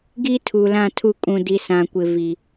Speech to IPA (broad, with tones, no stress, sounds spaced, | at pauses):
ɡ i˦ tʰ u˨ l ã˦˨ tʰ u˦˨ kʼ ũ˨ d i˨ s ã˨ kʷ ɪ˨ v i˨